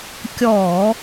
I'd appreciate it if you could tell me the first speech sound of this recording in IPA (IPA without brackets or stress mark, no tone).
kʲ